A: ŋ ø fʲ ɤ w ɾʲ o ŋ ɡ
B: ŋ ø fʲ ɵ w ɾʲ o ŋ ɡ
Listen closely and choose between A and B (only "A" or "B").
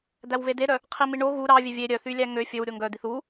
B